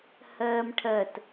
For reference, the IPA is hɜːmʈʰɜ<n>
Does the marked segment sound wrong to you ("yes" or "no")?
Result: yes